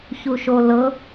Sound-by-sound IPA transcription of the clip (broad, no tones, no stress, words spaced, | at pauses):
çuʃolɤ